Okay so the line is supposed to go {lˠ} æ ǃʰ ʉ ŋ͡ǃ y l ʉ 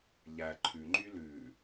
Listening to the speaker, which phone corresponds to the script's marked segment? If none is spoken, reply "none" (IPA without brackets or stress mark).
ʎ